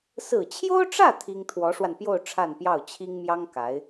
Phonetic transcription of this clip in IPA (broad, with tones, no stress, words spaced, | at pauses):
sɹ̩˨˩t͡ɕʰjo˥ʊ̯ʈ͡ʂä˥˩ t̪ʰi˥ŋ t̪ʰwɔ˧˥ʂwa˧npjo˥˧ʊ̯ ʈ͡ʂʰa˥˧npjɑ˥˩ʊ̯ t͡ɕʰi˥ŋmjɑ˥ŋ ka˧˥ɪ̯